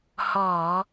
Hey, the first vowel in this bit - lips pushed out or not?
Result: yes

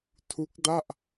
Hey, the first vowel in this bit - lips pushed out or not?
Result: yes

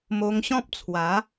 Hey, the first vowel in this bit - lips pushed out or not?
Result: yes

